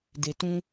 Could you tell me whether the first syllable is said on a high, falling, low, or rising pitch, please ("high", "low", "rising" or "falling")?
low